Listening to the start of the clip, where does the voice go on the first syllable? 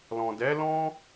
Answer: low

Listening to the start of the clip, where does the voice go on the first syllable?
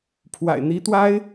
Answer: low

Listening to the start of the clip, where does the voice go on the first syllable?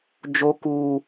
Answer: high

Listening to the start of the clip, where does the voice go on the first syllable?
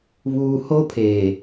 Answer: high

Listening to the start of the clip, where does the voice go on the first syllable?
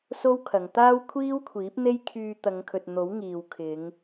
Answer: high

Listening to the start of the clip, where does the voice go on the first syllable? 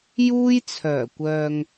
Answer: high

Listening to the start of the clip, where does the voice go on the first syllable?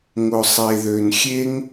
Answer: low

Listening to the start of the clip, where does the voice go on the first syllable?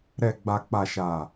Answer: low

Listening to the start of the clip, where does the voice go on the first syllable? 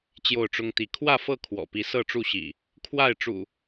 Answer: falling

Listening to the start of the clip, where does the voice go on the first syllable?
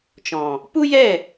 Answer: low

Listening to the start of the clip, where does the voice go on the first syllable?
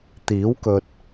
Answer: rising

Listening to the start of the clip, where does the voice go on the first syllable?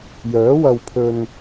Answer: rising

